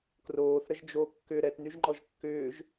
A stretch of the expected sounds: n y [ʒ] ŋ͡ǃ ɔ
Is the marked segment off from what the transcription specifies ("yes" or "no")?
no